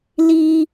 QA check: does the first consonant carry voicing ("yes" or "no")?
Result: yes